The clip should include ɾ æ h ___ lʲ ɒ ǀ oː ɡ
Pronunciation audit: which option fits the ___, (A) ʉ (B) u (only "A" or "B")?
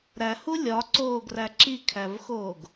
B